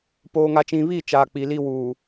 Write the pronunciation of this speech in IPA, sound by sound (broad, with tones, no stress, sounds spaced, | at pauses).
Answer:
p oː˨ ŋ a˨ t͡ʃ ĩ˨ β i˦˨ t͡ʃ aː˨ k͡p i˨ l i˦ w uː˨